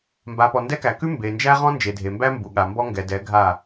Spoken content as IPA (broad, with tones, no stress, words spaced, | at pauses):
mba˨pɔ˨ndɛ˦kæ˨ kʉ˦mbe˨nd͡ʒæ˦ ʁɔ̃˦nd͡ʒe˨dʱe˨mbæ˦ mbu˨ɠa˨mbɔ˦ ŋɡɛ˨dɛ˨˦ ɡʱa˦˨